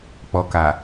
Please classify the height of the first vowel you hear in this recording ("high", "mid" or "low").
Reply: mid